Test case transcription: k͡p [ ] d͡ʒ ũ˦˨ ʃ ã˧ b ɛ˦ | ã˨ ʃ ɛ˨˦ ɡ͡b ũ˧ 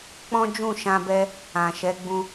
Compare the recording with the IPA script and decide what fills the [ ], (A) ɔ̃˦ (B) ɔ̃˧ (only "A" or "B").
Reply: A